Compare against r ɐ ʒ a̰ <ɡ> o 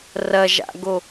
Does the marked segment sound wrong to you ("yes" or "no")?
no